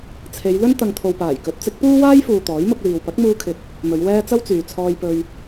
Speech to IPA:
t͡sʰe˨˧jlɵ˥n t̪ɐ˨ŋt̪ʰo˨wpaː˨˩jkɵ˨˥t̚ t͡sɪ˨˥k̚puː˥waː˥jfuː˨ t̪ɔː˨˥jmʊ˧k̚liː˨w pɐ˨˥k̚muː˧kʰɪ˨k̚ | mɵ˨˧ɥwɛː˥ t͡sɐ˥wt͡syː˨t͡sʰɔː˧jpɵ˧ɥ

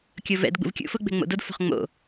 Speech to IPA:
kʲovɛ̰d ɡ͡bṵvkʲṵ fʊ ɡ͡bɛ̤ŋ͡mo̰dod fo̤χŋ͡mo̰

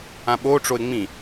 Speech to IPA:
ãɓoʈ͡ʂoɪ̯ ŋ͡mĩ

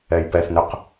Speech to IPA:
ɛjpɛθnøq

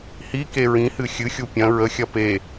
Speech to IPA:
hi keɹĩhɨ xʲɨxʲu pʲɐ̃ ɹəxʲɐ pe

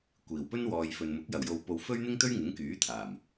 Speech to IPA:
kʷiː˨˩wpɵ˥nwɔː˨j fɵ˨nmʊ˨˥k̚ jɐ˨˩wjo˨wpo˨w fɵ˥ɥn̪ɪ˥ŋt̪ɵ˥ɥ ŋɪ˨˥ŋkyː˨˥t̪ʰaː˨˩m

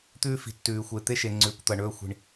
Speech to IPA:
t̪ʉː˦ fi̤˨ tːʉː˨xʷe˨t̪e˦ʃe˨ ŋ͡ǀʉː˨kʷt̪ɐ˨ ɳɵː˦˨xʷi̤˨ɳ

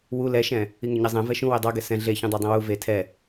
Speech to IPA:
wu lɛʃɛ̃ | iŋøɲɛzˤɛ̃ vɛʃũ wedˤɑ ɡɛsɛ̃ ɮe çũdˤɛdˤĩwu ve tʰɛ

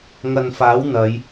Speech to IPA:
ŋɐ˨n faː˨˥wn̪ɐ˨˧j

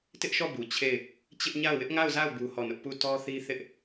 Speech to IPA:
tɪ˦ʔʃɔ˦˨bu˨ t͡ɕʰe˦˨ɪ̯ | t͡ɕɪ˦ʔɲa˦˨ʊ̯ wɪ˦ʔŋa˦˨ʊ̯za˦˨ʊ̯ bu˦hɔ˦˨nʊ˦ʔ pu˦˨ tɔ˦θi˦ θɪ˦ʔ

